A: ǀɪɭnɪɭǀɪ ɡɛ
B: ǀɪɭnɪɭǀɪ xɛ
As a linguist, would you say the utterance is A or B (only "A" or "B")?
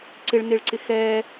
B